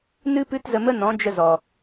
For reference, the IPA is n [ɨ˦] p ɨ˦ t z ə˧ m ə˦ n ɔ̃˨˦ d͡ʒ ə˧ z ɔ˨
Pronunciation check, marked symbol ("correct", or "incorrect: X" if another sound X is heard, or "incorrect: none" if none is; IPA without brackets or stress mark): correct